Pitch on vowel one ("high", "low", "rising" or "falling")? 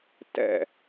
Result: falling